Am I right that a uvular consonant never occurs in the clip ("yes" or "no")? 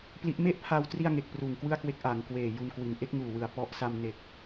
yes